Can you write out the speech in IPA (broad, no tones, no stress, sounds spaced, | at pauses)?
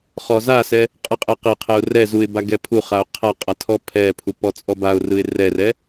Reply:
χ ɔ z a s ɛ | qʼ ɯ qʼ ɛ q e qʰ ɛ ʊ̯ r ɛ z u ɪ̯ b a ɡ ɛ pʰ u χ a ʊ̯ qʰ a qʼ a tʰ ɔ pʰ ɛ pʰ u p ɔ t͡sʼ ɔ b a ʊ̯ r ɯ ɪ̯ r ɛ r ɛ